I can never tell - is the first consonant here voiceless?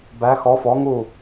no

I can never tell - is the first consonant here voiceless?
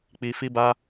yes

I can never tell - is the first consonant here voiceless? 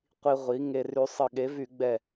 yes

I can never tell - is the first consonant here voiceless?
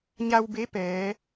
no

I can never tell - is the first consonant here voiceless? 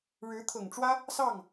no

